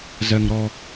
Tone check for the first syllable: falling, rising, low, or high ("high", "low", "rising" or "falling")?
high